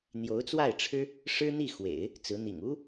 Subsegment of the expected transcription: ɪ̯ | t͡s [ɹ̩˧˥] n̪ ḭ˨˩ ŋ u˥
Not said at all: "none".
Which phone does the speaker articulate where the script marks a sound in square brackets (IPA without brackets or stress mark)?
ɹ̩˧˥